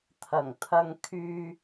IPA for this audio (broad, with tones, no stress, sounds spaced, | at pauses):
t̪ʰ ɐ˨˩ ŋ t̪ʰ ɐ˧ ŋ kʰ yː˧